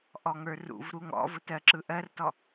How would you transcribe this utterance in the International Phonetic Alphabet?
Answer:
ʔ ɔ ŋ ə˞ r ṵ v ɾ u ŋ ɔ̰ v ʊ t ɜ ǁ ɯ ʔ ɜ r t ɔ

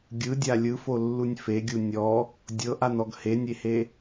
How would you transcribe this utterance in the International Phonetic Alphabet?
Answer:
ɡʲ ɯ dʲ a lʲ ɯ f o lː u nʲ f e ɡʲ u nʲ ɔ | dʲ ɤ ʔ a n ɔ ɡ h e nʲ e h e

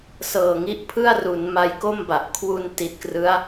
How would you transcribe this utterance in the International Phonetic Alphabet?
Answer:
s ɤː˨˩ ŋ i˦˥ ʔ pʰ ɯ˥˩ a̯ r u˩˦ n m a˧ j k o˥˩ m b a˨˩ ʔ kʰ w u˧ n t i˨˩ t̚ k r ɯ˦˥ a̯

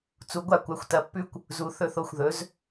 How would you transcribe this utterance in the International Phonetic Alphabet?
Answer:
t͡s u˨˥ ɡʷ a˥˨ kʷ a˧˥˧ xʷ t ɐ˨˥ pː ʉ˥ kʷ | z u˧˥˧ θ ɵ˥˨ θ o˥˨ xʷ ð ɵ˨˥ z

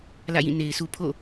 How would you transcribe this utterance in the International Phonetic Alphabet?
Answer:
l ä̰˦˨ j ĩ˦˨ n e˨ ɪ̯ s u˦ pʰ o̰˦˨

